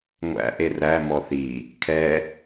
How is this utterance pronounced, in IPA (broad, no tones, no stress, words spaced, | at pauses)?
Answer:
ŋʷæ̰ʔe ræmɔ θi | kʰɛ